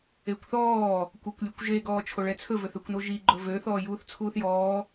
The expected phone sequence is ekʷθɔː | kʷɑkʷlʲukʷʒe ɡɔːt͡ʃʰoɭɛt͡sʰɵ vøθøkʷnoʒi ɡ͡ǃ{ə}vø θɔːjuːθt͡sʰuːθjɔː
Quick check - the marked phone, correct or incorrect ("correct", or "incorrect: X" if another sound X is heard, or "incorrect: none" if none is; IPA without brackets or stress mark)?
incorrect: ɵ